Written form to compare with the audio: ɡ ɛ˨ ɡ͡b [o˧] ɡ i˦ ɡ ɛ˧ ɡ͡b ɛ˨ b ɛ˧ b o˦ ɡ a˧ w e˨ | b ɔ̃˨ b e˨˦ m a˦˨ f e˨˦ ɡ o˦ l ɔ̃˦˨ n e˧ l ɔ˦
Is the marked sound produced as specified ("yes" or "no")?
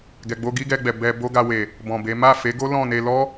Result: yes